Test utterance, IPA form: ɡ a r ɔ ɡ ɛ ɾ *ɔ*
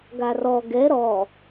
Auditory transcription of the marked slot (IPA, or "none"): ɔ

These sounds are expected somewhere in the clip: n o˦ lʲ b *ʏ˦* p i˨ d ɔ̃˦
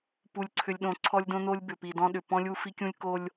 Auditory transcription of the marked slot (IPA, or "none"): ʏ˨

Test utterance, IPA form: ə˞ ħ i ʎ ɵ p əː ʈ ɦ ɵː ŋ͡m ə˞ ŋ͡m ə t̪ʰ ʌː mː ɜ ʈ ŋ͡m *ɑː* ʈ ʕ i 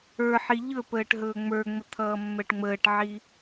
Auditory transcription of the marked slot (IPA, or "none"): əː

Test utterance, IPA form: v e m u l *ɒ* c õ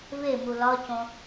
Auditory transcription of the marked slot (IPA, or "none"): ɒ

